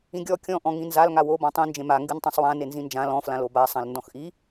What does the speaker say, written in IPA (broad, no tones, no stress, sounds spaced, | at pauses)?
ĩ ɡʲ ɔ kʲ ɔ̃ ʔ ɔ̃ ŋ ĩ n z a l ŋ a w o b ɔ̃ tˤ ĩ n d͡ʒ ẽ m a ŋ ɡ ɨ n tˤ ẽ sˤ w ã n e n z ĩ n d͡ʒ ã l ɔ̃ f l ã l o b a sˤ ã l n d ɔ̃ x ʔ i